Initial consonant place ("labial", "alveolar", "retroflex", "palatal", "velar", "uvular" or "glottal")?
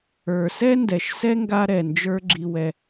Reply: alveolar